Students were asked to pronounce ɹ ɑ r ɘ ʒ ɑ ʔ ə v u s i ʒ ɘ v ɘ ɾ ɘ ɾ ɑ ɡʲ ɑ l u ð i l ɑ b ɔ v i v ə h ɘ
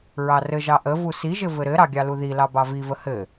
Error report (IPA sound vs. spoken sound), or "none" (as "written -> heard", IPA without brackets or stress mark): ɔ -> ɑ